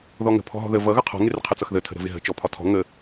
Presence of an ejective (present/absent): absent